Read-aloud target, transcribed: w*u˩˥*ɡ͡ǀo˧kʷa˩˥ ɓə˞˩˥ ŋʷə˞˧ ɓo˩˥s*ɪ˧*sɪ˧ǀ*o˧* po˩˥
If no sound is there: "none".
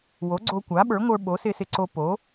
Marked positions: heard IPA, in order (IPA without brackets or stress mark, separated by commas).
o˩˥, ɪ˧, o˧